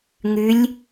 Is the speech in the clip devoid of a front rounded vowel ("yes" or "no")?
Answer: no